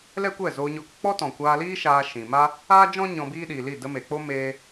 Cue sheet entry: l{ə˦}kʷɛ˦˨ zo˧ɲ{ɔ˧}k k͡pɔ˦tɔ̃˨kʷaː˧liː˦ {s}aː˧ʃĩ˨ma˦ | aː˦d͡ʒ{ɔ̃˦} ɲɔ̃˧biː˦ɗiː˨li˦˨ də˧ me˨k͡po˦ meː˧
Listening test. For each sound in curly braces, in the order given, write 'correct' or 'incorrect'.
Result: incorrect: ɛ˦, correct, incorrect: ʃ, correct

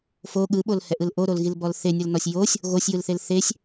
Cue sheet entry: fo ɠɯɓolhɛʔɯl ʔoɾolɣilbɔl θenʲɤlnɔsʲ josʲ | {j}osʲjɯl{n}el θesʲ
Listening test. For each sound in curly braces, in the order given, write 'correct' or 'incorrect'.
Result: incorrect: ɣ, incorrect: θ

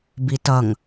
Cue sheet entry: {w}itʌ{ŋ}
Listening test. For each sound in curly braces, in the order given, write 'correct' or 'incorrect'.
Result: incorrect: b, correct

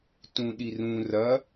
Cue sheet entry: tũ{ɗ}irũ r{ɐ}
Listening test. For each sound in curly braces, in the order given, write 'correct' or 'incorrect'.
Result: correct, correct

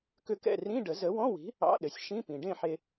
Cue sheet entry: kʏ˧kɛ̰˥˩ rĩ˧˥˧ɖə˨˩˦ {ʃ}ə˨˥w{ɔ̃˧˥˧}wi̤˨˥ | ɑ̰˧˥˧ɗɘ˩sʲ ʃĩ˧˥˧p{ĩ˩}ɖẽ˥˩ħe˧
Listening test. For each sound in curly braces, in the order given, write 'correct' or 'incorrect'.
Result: incorrect: z, correct, correct

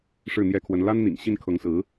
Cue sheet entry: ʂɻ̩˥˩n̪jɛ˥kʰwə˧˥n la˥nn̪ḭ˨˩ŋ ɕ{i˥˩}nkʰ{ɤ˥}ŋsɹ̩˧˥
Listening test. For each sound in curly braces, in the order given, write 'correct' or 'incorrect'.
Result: correct, incorrect: ɤ˧˥

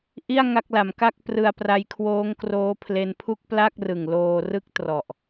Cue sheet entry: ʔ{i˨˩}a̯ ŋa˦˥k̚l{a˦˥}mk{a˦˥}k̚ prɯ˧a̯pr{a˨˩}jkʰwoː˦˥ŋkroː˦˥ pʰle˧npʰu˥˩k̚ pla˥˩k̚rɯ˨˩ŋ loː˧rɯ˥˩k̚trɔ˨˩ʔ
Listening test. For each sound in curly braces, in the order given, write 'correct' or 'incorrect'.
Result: incorrect: i˥˩, incorrect: a˩˦, incorrect: a˥˩, incorrect: a˧

